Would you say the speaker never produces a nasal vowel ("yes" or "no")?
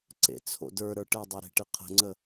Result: yes